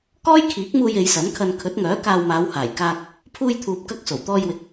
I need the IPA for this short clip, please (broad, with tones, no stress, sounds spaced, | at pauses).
k ɔː˥ j kʰ iː˨˥ k̚ m uː˧ j e˨˧ j s ɐ˨˥ n kʰ ɐ˧ n kʰ ɵ˨˥ t̚ ŋ œː˨˥ k aː˧ w m aː˨˧ w h aː˨˩ j k aː˧ k̚ | pʰ uː˧ j t̪ʰ uː˨ p̚ k ɐ˧ k̚ s o˨˩ w t̪ ɔː˧ j w ɪ˨˥ k̚